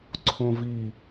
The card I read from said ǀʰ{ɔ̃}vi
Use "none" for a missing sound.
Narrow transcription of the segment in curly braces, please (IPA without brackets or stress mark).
õ